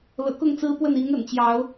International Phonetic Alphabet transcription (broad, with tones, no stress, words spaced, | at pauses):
lɤ̰˨˩kʊ˥˨ŋt͡sɹ̩˦pwə˥˨n i˨˦ŋə̰˨˩nt͡ɕjɑ˨˦ʊ̯